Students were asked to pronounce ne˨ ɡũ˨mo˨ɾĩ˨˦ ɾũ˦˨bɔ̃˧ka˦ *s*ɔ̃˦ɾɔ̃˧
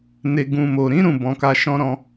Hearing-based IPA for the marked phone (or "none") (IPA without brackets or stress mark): ʃ